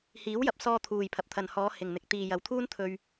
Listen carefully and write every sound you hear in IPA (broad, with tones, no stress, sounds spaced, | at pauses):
h iː˨˥ w j ɐ˨ p̚ s ɔː˧ t̪ʰ uː˨ j pʰ ɐ˨ p̚ t̪ʰ ɐ˨ n h ɔː˨˧ h ɪ˨ ŋ n̪ ɪ˨ k̚ t̪ iː˨ j ɐ˨ w t̪ʰ uː˥ n t̪ʰ ɵ˧ ɥ